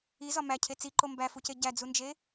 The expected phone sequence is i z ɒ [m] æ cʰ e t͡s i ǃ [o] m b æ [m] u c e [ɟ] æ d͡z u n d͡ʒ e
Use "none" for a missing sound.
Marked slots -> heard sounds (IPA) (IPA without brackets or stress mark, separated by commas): m, o, f, ɟ